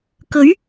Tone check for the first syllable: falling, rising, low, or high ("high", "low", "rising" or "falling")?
rising